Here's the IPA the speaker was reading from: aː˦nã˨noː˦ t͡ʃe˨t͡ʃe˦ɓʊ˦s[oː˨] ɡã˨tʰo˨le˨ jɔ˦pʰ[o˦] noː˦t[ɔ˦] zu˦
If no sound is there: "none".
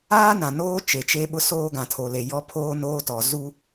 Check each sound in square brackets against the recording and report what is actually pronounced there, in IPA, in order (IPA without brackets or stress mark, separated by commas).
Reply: oː˦, oː˦, ɔ˨